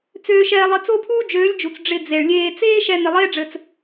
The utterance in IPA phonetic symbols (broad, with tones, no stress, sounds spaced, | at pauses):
t͡s øː˧ ʃ ɛː˧ lˠ ɘ˧ t͡s o˦ pʰ uː˦ d͡ʒ øː˨˦ lʲ d͡ʒ u˨ t͡s ɖ͡ʐ ɪ˧ d͡z e˨ ɭ lʲ eː˧ t͡s eː˦ ʃ ɛ˧ n ɪ˧ lˠ eː˦ ɖ͡ʐ ɘ˧ t͡s